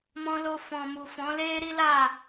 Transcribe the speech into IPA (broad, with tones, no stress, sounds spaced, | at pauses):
m ɔ̃˧ l o˧ f ɔ̃˨ m u˨ f ɔ̃˨˦ l e˦ ɾ i˦ l a˦˨